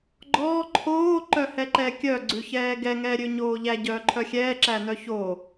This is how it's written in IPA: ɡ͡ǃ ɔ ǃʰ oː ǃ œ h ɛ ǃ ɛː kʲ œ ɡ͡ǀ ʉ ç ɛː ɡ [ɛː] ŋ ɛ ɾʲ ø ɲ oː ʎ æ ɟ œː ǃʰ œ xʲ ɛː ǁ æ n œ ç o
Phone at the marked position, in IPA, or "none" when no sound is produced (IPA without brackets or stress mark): ɛ